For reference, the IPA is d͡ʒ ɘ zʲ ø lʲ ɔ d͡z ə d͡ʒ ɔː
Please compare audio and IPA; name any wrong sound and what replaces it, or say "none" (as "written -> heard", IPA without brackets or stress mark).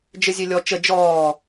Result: d͡z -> t͡ʃ